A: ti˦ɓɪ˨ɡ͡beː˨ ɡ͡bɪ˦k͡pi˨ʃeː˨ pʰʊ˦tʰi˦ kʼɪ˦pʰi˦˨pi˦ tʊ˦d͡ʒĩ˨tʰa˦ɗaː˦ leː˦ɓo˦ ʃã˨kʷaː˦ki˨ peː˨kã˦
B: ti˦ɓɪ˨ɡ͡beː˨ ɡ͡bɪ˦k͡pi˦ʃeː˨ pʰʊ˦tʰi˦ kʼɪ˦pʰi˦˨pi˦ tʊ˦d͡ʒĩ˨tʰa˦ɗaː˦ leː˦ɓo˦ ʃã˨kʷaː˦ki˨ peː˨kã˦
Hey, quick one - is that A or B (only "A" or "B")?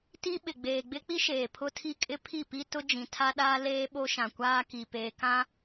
B